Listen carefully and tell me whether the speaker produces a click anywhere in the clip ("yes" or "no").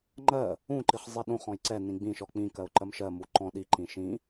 yes